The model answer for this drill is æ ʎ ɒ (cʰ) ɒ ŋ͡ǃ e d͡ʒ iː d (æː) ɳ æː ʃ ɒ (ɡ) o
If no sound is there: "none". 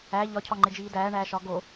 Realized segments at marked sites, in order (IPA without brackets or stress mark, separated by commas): cʰ, æː, ɡ